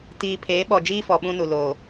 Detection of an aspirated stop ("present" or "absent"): present